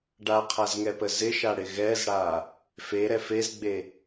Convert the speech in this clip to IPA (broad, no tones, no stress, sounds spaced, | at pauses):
ɖ a qʰ a z ŋ ɛ p ə z ɪ ʃ a ɽ ɪ ɣ ɛ z ɽ a | f e ɾ ɛ f e z ɡ͡b e